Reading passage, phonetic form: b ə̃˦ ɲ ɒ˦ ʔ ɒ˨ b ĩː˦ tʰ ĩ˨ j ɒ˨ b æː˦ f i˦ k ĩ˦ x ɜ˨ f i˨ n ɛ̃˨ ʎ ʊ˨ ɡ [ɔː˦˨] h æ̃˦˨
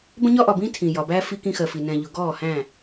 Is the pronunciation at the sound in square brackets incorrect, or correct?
correct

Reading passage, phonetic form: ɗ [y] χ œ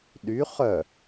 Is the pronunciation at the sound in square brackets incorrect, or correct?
correct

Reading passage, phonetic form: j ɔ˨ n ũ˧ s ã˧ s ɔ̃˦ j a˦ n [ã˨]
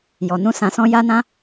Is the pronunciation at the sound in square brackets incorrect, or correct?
incorrect: ã˦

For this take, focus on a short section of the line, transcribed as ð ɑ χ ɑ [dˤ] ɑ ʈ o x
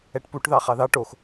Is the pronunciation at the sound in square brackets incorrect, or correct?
incorrect: ð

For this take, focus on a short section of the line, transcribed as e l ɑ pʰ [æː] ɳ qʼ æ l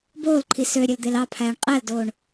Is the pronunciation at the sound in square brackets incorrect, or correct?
correct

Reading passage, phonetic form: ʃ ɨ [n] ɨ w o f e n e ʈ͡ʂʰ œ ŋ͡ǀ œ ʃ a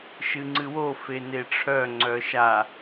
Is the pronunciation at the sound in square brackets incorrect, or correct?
incorrect: ŋ͡ǀ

